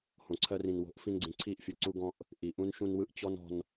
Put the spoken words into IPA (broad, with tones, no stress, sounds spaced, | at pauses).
h õ˨ ǀʰ ɜ˧ r ĩ˨ n w o̤˨˦ ʔ f ĩ˧ n ɡ͡ǀ ĩ˨ ǀʰ i˦˨ ʔ fʲ ɯ˨ ǀ u˧ ɡ ɔ̃˧ ʔ | ʔ i˨ ʔ ũ˦ n ʃ ũ˧ n w ɯ˧ ʔ t͡ɕ ɔ˦ n ɔ̤˧ n